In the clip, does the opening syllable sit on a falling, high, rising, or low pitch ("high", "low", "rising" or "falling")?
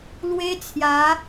high